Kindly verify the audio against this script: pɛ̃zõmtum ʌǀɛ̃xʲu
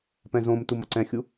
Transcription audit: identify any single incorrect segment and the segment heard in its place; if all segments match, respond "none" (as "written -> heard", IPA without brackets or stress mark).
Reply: none